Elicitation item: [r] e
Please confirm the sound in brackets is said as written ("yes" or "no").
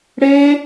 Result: no